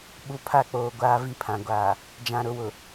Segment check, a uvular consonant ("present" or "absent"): absent